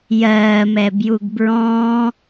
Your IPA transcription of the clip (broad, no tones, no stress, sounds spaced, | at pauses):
j ɜː m ɛ b j u ɡ b ɹ ɔ̃ː